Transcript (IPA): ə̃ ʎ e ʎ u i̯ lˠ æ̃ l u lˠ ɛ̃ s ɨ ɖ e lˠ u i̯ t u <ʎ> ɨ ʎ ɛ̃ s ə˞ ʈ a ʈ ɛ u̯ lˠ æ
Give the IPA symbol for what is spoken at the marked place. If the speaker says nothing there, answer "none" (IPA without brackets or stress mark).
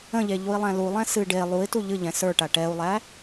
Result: ʎ